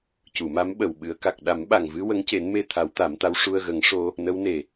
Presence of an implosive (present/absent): present